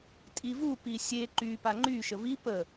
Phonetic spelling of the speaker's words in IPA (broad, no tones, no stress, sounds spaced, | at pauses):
tʼ i v u p i sʲ e ǃ y p a ŋ͡ǃ y ʃ ə v i p ə